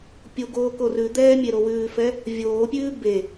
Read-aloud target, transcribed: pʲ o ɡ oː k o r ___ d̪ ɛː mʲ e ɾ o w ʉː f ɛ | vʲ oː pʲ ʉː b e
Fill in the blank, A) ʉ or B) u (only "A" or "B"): A